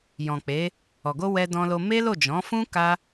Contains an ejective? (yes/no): no